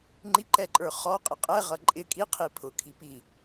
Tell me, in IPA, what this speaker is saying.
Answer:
ŋ͡ǃiǃɛǃʼə˞ χɔqʼɪ qʼɛʁʌ ǃʼɪ kʼiqʰi pʰʊkʰi pi

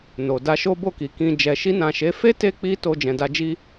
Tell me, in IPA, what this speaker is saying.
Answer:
no˨ da˧ʃo˦bo˦˨ki˨ kĩ˧ d͡ʒɛ˨ʃi˧nã˨ʃe˨˦ fe˦te˧ k͡pi˦ to˧ d͡ʒɛ̃˨da˧d͡ʒi˦

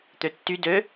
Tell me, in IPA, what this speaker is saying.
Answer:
t̪øtːy dø

